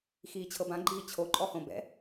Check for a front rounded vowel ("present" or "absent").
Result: absent